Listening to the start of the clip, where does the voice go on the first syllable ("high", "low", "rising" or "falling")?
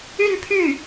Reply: falling